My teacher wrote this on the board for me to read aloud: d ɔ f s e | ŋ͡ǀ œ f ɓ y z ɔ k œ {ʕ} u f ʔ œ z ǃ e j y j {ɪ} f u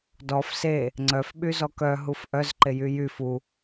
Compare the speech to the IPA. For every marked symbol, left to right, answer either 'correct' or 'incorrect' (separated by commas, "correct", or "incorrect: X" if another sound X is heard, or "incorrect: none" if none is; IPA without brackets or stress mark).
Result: incorrect: ɦ, incorrect: y